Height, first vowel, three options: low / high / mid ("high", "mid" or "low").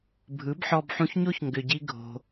high